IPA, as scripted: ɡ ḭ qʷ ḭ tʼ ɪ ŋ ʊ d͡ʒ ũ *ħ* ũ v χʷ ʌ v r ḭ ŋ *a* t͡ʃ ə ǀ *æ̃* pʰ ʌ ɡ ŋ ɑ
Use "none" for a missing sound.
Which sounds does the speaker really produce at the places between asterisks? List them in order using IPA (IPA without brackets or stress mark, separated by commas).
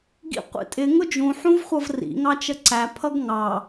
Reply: ħ, ɑ, æ